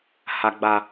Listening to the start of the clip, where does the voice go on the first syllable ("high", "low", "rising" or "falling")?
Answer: low